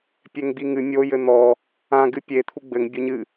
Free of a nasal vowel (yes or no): no